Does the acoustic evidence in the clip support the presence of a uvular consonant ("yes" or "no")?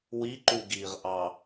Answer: yes